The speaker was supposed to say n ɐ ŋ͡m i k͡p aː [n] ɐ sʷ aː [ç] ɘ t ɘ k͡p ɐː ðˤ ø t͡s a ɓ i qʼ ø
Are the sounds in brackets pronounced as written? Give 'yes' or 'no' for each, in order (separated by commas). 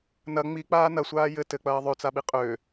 yes, no